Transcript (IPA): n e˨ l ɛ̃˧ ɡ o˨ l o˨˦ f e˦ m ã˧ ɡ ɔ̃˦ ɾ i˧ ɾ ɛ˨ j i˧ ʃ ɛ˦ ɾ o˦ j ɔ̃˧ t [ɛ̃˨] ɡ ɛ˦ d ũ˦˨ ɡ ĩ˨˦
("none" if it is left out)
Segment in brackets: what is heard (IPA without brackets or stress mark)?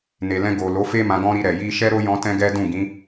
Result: ɛ̃˦